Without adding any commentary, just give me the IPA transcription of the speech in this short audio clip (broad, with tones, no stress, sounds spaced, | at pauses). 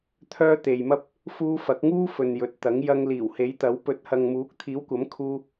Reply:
t̪ʰ œː˥ t̪ e˨ j m ɐ˥ p̚ | f uː˥ f ɐ˨˥ k̚ ŋ uː˥ f ɵ˨ n j ɵ˨ t̚ t̪ ɐ˨˥ ŋ j ɐ˧ ŋ l iː˨˩ w h e˨˥ j t̪ ɐ˨˥ w p ɵ˨˥ t̚ h ɐ˨ ŋ m uː˨˥ k̚ t̪ʰ iː˨˥ w kʷ ɐ˨˥ m kʰ uː˥